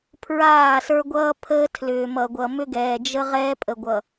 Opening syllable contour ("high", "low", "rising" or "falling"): falling